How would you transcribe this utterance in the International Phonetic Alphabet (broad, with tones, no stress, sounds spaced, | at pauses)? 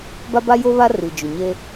b a˦ b a˦ j o˦ β a˦ r i˨ d͡ʒ ʊ˨ ɲ e˦